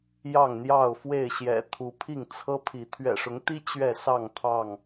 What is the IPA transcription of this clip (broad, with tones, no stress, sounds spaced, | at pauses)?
j ɑ˥˨ ŋ n̪ j ɑ˥˨ ʊ̯ f w e˥˨ ɪ̯ ɕ j ɛ̰˨˩ t̪ʰ u˨˦ pʰ i˥˨ ŋ t͡sʰ ɤ˦ pʰ i˨˦ t̪ʰ ɥ ɛ̰˨˩ ʂ ʊ˨˦ ŋ t̪ i˦ t͡ɕ ɥ ɛ˥˨ s ɑ˥˨ ŋ t̪ʰ ɑ˥˨ ŋ